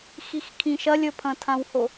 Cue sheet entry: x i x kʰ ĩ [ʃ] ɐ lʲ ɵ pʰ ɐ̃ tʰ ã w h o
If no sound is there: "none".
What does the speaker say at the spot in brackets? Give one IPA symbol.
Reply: ʃ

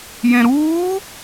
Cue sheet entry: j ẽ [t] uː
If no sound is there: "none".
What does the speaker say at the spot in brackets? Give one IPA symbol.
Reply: ɾ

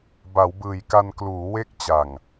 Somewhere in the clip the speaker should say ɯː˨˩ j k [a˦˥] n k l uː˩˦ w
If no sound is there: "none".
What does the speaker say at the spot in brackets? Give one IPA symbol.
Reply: a˧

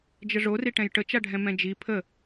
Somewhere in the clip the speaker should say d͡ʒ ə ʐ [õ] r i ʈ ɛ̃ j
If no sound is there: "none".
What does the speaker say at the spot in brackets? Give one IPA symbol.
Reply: o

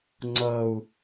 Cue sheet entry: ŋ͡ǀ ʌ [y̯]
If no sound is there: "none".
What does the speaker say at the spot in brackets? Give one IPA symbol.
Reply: u̯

